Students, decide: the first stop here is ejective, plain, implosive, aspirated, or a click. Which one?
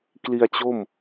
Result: plain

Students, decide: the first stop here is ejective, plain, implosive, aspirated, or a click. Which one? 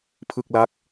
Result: aspirated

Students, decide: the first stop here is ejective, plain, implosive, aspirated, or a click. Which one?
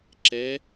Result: click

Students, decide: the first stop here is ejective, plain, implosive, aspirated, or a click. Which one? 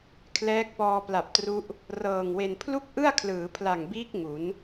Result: aspirated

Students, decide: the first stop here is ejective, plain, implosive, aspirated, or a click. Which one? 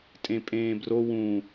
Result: ejective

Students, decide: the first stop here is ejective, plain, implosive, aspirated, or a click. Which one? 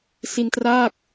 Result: plain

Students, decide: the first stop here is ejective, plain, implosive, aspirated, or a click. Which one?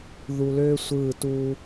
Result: plain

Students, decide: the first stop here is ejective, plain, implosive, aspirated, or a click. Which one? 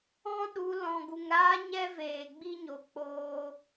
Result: implosive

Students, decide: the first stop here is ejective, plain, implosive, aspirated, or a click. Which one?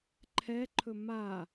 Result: click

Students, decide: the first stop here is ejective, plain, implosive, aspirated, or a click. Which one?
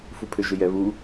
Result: aspirated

